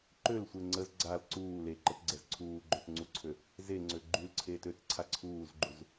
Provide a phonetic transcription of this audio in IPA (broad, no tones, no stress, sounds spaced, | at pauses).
ǃ ø l sʷ e ŋ͡ǀ ə z ɡ͡ǀ a l ǀ uː l e ǃ ə t ɡ͡ǀ ɛ z ǀʰ uː ɡ͡ǃ o t ŋ͡ǀ u ǀʰ ø | z e ŋ͡ǀ ø ɡ͡ǃ y l ǀʰ eː t ø t ǀʰ a ǀʰ uː z ɡ͡ǃ u z